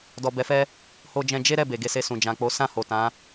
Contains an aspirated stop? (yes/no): no